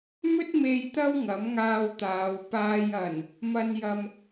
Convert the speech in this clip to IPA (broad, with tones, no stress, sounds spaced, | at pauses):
m ɵ˥ t̚ m e˧ j t̪ ɐ˥ w ŋ ɐ˨˥ m ŋ aː˧ w t̪ aː˨˧ w p aː˨ j ɐ˨˩ n | m ɐ˨ n j ɐ˨ m